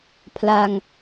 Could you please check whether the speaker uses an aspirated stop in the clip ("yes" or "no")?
yes